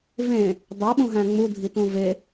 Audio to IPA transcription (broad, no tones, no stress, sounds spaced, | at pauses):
v ẽ | dˤ æ ɓ ũ ɦ æ̃ ŋ͡m u dʱ i t ũ v e